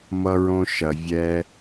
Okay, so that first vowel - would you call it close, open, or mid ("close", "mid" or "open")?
mid